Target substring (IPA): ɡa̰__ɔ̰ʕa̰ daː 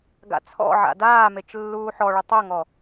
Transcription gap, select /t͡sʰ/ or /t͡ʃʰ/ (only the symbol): t͡sʰ